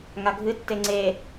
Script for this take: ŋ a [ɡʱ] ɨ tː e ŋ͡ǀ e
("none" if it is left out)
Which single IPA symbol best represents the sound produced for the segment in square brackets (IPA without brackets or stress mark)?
ɡʱ